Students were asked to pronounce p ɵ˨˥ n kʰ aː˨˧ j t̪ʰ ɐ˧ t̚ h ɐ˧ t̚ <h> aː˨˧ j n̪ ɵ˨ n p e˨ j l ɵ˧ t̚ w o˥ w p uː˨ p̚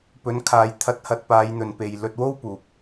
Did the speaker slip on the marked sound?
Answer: yes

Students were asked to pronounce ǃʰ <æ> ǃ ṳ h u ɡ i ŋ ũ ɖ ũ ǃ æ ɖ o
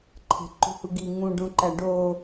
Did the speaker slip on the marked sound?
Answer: yes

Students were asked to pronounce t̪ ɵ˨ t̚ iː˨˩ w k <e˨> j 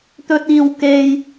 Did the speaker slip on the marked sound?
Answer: no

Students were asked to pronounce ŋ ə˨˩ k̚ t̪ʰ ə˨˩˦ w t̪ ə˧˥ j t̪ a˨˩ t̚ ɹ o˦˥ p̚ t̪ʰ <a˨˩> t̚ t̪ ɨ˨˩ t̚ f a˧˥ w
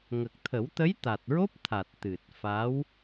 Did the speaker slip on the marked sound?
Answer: no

